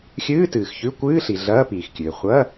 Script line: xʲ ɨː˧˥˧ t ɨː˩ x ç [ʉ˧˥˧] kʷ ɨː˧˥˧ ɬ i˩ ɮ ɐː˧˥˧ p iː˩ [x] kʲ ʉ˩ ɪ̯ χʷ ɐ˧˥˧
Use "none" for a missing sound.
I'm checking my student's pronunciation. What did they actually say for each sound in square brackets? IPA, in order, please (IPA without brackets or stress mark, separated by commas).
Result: ʉ˧˥˧, x